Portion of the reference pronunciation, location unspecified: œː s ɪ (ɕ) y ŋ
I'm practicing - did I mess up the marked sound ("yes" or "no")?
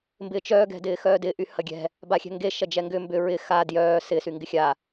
yes